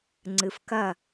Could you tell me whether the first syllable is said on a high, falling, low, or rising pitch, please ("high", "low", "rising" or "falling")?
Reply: low